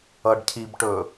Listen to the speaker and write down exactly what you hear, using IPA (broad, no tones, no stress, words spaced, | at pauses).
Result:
ʌɖcʰibʈɵ